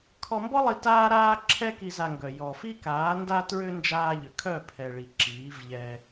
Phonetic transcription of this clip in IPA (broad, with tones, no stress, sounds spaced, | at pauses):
kʰ ɔ˧ m b ɔ˦ lˠ i˧ t aː˦ ɾ aː˦ ǁʰ ɛ˦ k i˧ z a˧ ŋ ɡ œ˨ j ɔ˨ f i˦ k aː˨˦ n d a˦ t ɹ ʏ˦ n d͡ʒ aː˧ ʎ ʏ˨ kʰ œ˦˨ pʰ ɛ˨ ɭ i˨ ǁ iː˨˦ v ʎ ɛ˧